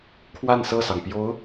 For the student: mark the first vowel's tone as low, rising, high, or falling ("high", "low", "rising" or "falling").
falling